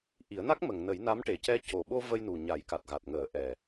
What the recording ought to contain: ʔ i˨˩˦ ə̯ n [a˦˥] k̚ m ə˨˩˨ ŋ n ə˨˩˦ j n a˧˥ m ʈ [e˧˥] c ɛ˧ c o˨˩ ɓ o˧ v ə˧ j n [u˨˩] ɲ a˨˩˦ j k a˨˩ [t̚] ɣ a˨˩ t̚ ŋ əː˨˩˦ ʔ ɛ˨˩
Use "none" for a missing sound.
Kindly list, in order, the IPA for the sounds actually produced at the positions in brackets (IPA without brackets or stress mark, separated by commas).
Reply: a˦˥, e˨˩, u˨˩, t̚